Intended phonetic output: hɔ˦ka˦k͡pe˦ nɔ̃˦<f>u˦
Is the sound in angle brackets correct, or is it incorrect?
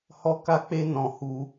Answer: incorrect